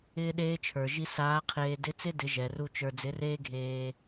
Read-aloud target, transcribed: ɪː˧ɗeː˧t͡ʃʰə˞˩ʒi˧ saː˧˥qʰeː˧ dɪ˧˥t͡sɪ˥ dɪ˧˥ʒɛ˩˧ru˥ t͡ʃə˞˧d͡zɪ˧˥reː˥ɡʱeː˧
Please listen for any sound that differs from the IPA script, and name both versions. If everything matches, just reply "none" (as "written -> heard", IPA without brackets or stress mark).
none